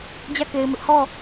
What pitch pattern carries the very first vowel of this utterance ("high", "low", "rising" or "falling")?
falling